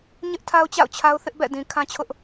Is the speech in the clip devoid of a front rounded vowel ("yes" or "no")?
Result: yes